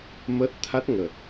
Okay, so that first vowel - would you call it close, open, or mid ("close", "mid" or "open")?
mid